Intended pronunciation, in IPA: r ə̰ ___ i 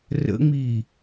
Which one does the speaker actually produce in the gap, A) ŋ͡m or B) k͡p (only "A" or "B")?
A